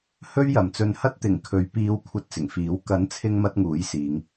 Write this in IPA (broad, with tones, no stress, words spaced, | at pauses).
hɵ˥ɥjɐ˨mt͡sɵ˧n hɐ˥t̚t̪ɪ˨˩ŋkʰɵ˨˧ɥ piː˨˧w kʷʰɐ˧t̚t͡sɪ˨˩ŋfiː˨˥w kɐ˨˥nt͡sʰɪ˧ŋ mɐ˧t̚ŋuː˨˥j siː˨˧ŋ